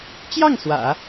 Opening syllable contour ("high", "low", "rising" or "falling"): falling